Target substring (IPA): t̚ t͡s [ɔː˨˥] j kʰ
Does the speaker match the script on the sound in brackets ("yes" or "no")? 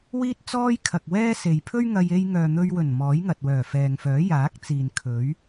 no